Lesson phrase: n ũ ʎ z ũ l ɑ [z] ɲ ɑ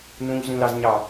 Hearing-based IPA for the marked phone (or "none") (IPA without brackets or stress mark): z